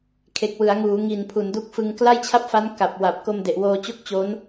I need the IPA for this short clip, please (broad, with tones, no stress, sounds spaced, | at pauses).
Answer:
kʰ e˨˩ k̚ w ɯ˩˦ a̯ ŋ uː˩˦ ŋ i˨˩ n pʰ u˩˦ n d u˦˥ k̚ f ɯ˧ ŋ k l a˥˩ j t͡ɕʰ a˥˩ p̚ f a˦˥ n k a˨˩ p̚ w a˨˩ p̚ k o˧ m d e˨˩ ʔ w oː˧ t͡ɕ o˥˩ k̚ t͡ɕ o˦˥ n